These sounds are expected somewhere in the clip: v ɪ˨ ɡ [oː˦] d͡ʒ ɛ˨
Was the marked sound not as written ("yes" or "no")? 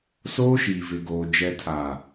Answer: yes